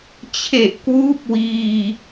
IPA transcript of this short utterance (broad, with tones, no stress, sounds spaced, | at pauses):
t͡ɕʰ e˨˩ ʔ k w uː˦˥ p̚ w iː˧